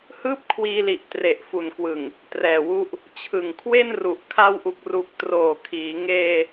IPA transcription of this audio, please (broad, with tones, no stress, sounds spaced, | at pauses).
h ɯː˥˩ p̚ kʰ w iː˧ l i˨˩ ʔ t r e˨˩ ʔ f u˨˩ n k w ɯ˨˩ ŋ | t r ɛː˨˩ w u˦˥ ʔ | t͡ɕʰ ɯ˨˩ ŋ kʰ w e˥˩ n r u˨˩ ʔ kʰ a˦˥ w ʔ u˨˩ k̚ r u˨˩ k̚ t r oː˨˩ kʰ iː˩˦ ŋ eː˧